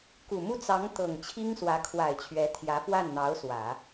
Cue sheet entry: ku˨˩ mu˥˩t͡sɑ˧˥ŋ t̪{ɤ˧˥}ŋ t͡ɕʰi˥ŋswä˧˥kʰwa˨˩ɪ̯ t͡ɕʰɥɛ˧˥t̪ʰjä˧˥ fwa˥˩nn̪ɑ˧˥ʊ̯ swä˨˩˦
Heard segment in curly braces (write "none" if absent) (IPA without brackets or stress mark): ɤ˨˩